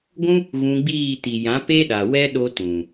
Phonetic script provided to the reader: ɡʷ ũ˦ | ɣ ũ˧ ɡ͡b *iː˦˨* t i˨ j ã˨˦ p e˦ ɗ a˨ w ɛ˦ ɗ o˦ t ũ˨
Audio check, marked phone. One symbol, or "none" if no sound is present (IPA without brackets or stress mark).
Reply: iː˦˨